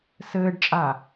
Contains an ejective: yes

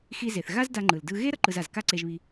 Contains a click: yes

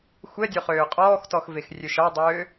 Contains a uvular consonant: yes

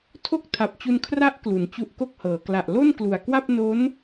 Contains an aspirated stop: yes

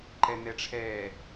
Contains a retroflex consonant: yes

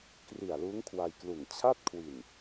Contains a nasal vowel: no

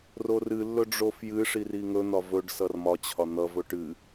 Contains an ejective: no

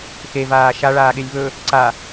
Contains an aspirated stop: no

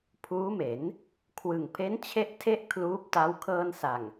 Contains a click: no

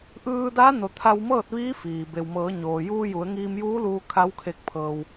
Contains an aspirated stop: yes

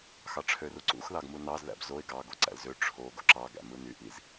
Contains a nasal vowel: no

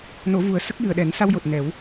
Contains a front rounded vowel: no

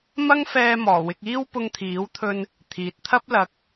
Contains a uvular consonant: no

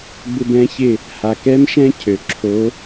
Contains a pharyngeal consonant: no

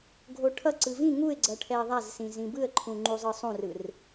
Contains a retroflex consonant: yes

